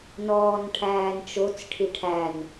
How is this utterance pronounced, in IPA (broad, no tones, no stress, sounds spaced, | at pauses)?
n ɔː n ʈʰ æː n t͡ʃ o t͡s ʈʰ i ʈʰ æ n